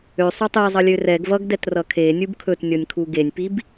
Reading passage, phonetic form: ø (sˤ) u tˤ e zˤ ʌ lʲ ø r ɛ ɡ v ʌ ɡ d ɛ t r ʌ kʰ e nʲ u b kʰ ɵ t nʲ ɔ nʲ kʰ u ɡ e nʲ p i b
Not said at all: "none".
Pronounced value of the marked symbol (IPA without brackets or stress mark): sˤ